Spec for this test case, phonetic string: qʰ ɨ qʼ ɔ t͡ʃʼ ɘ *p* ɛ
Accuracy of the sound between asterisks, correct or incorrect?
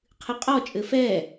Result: incorrect